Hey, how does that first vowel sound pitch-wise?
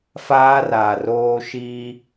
high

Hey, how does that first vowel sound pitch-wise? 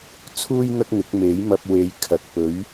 high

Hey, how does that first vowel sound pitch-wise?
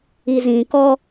low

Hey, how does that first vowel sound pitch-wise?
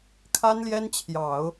high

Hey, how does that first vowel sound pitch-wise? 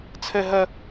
high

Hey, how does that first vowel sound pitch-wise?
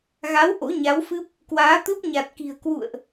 rising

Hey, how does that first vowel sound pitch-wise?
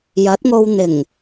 rising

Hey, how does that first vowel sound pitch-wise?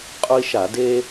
high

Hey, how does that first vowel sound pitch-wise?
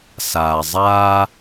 low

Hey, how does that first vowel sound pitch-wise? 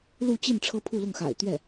falling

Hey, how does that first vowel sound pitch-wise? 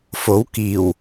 rising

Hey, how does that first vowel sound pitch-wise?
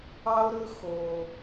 high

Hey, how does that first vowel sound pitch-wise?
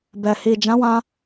low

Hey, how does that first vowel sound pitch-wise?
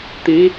rising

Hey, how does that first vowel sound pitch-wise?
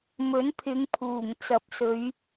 rising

